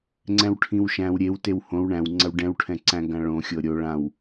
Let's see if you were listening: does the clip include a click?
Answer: yes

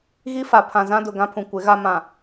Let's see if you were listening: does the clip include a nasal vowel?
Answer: yes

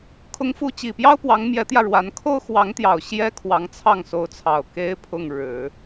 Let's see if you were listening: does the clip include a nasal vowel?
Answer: no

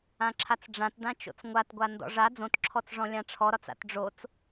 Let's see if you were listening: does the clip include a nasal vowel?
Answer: yes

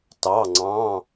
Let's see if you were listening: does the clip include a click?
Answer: yes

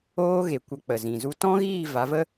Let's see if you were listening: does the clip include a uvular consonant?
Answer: no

